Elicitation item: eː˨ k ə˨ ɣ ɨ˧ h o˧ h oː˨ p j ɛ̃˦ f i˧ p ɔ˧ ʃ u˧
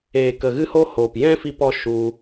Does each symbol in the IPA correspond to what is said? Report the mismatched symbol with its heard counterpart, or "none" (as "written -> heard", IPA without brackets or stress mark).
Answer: none